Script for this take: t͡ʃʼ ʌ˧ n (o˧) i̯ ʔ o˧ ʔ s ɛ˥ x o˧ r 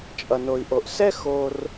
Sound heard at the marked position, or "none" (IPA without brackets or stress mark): o˧